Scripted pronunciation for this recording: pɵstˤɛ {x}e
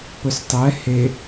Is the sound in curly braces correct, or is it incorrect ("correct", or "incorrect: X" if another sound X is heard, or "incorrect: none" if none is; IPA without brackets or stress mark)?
incorrect: h